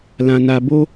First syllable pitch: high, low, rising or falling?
low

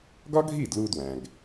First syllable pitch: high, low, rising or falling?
high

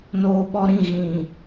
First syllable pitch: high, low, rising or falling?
low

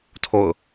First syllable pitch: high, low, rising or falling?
falling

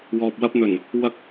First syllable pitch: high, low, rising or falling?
low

